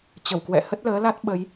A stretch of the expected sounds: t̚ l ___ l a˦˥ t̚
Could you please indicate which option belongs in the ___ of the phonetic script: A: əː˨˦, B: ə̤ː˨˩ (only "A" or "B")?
A